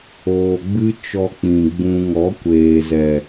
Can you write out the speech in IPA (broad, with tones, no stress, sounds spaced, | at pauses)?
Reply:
oː˧ ɡ͡b ɨ˦ t͡ʃ ɔ˧ k͡p ĩ˨ ɡ͡b ũ˧ ŋ ɔ˨˦ kʷ eː˨ z ɛ˨